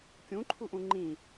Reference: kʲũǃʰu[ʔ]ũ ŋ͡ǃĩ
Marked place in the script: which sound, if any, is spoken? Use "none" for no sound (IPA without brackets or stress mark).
ʔ